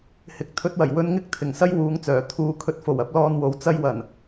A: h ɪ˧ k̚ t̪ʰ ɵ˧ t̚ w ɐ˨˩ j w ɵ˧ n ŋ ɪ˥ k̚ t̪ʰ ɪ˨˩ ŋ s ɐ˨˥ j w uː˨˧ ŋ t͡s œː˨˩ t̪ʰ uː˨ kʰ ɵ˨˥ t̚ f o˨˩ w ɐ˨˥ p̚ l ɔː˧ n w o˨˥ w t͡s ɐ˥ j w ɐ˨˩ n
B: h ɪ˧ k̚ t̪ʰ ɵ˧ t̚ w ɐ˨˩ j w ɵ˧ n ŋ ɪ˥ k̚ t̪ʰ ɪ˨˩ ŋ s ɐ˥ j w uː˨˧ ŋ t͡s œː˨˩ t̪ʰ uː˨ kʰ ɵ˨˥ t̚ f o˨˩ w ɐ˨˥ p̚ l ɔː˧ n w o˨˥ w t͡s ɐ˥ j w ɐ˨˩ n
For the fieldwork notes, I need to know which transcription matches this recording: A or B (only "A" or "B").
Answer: B